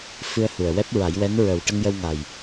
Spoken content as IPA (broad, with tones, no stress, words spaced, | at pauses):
fɨ˧ə̯hu˨˩ə̯ wɛ˦˥p̚ɹa˨˩˦jwɛ˧˥n ɹə˨˩w ʈə˧ŋjə˧wŋa˨˩j